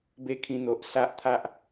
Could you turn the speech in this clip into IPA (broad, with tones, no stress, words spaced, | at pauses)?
be˦kʰĩ˧n̪o˨ʔ sa˦ʔt̪ʰa˦ʔ